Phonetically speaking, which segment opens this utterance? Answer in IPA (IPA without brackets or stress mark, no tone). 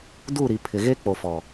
d